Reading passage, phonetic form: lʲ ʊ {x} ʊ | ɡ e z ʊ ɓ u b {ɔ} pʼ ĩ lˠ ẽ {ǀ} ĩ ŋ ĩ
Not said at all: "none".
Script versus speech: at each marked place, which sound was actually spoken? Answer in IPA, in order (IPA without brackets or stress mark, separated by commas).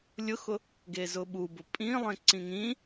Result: x, ʊ, ǀ